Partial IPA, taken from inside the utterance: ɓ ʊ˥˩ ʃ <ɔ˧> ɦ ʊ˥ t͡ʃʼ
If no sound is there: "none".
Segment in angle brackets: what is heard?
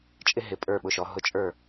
ɔ˧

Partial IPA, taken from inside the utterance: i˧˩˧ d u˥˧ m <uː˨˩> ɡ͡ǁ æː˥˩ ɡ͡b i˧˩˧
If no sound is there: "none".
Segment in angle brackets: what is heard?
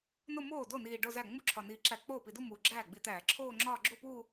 uː˨˩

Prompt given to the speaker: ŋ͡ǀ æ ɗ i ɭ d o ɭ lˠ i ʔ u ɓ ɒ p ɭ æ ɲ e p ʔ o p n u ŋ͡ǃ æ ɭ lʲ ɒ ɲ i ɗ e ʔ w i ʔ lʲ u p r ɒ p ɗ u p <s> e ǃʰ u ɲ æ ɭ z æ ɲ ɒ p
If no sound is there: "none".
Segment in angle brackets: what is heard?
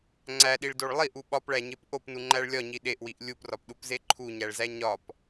z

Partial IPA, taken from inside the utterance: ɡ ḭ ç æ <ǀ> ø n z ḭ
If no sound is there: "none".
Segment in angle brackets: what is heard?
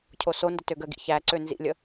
ǀ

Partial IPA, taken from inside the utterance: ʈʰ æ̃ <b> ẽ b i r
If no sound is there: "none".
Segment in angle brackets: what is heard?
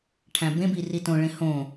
b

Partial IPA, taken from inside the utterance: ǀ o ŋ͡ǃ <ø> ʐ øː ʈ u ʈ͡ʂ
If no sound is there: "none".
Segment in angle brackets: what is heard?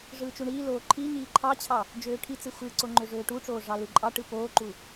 ø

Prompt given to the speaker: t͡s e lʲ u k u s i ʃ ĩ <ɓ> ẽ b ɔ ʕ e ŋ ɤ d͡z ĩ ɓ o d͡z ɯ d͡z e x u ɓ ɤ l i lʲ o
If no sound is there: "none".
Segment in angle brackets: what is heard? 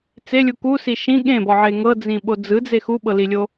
ɠ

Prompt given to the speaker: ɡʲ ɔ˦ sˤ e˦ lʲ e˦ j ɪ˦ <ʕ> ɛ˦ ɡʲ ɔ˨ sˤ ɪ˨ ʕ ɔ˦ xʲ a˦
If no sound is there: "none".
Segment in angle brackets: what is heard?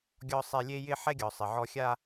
ħ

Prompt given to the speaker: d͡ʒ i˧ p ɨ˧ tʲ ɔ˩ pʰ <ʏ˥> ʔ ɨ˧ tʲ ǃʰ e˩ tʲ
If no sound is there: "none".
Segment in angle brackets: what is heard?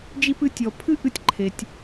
ɨ˥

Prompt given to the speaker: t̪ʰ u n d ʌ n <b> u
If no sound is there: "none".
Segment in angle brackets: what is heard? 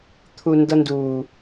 d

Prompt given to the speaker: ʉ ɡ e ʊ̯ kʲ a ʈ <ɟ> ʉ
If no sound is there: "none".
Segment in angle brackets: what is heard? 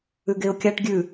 ɡʲ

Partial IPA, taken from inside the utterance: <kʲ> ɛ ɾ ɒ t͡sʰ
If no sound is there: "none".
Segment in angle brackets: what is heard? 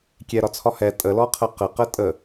kʲ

